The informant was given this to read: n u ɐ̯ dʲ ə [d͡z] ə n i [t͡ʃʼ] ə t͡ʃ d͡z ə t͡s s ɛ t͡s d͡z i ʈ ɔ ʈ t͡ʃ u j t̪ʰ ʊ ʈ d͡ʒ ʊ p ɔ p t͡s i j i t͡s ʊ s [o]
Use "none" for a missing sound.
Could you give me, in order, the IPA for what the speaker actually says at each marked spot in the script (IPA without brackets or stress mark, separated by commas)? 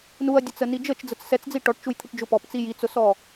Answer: t͡s, d͡ʒ, ɔ